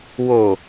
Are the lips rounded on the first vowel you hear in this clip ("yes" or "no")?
yes